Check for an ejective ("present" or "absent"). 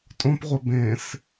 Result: present